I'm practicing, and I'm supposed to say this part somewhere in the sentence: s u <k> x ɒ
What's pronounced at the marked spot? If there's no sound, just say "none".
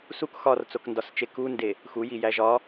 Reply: k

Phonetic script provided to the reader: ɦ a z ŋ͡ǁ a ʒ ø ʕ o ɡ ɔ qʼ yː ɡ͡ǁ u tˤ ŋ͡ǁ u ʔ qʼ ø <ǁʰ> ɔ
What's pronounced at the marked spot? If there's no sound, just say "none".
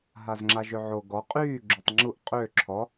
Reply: ǁʰ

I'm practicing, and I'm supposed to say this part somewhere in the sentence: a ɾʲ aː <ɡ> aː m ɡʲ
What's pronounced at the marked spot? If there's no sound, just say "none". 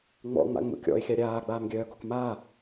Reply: ɡ͡b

